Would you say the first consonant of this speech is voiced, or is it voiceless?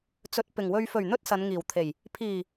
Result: voiceless